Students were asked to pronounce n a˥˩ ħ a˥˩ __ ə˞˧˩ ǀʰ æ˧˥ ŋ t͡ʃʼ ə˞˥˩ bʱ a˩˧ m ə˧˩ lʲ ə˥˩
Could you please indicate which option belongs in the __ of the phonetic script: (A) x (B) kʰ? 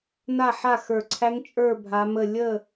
A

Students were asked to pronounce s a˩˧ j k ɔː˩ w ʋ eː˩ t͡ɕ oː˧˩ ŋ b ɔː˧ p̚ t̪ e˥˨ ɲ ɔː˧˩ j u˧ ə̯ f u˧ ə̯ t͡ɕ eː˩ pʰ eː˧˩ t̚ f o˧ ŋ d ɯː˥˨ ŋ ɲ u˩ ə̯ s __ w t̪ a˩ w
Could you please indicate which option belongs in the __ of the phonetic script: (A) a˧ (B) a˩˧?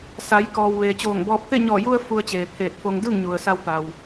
A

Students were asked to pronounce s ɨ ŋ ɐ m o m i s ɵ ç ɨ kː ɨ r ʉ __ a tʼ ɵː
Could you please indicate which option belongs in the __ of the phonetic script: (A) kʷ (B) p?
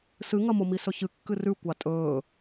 A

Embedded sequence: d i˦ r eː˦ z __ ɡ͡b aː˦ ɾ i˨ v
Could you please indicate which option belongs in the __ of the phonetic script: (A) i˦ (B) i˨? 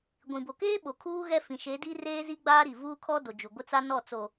A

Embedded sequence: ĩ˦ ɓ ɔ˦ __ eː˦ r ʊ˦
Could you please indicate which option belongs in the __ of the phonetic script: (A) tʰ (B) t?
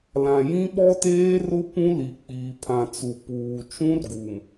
B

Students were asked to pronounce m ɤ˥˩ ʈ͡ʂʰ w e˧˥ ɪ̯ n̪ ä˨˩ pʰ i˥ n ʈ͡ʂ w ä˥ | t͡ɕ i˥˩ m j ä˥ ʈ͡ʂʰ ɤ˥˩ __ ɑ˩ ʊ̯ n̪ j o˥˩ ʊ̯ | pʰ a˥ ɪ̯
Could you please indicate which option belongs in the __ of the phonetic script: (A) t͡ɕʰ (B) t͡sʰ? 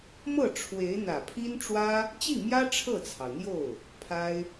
B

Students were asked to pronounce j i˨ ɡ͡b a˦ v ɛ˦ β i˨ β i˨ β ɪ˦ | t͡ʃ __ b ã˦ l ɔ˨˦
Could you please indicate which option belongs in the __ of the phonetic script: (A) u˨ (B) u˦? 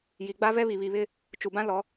A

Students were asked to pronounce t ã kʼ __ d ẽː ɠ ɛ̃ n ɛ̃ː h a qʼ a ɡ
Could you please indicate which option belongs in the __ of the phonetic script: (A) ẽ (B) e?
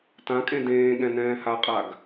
A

